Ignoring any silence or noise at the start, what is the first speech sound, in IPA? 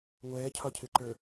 ŋʷ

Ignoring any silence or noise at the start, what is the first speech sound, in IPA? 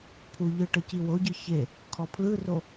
pʰ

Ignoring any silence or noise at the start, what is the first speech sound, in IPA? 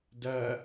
d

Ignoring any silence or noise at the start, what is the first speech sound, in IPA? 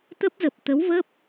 t̪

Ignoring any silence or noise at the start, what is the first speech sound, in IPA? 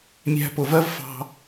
mʲ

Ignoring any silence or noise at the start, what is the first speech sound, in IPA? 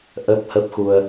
ʔ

